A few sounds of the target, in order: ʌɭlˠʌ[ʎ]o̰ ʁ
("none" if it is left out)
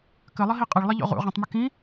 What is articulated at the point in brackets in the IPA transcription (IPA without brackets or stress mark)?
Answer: ʎ